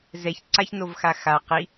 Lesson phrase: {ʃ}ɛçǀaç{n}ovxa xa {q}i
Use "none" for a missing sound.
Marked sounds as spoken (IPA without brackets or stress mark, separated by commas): z, n, q